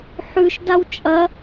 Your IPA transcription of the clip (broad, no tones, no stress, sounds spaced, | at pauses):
ħ ʉ ʃ d a w t͡ʃʼ ɐ